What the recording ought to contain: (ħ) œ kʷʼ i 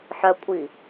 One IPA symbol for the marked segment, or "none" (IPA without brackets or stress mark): ħ